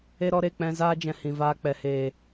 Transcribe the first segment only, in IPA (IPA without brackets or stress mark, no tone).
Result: e